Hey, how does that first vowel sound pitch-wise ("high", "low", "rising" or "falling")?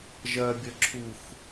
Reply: low